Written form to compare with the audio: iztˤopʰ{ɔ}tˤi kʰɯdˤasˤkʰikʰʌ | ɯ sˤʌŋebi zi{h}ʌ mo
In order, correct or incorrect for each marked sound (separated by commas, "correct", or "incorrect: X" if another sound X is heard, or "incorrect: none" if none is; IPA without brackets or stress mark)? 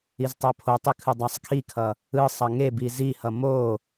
incorrect: o, correct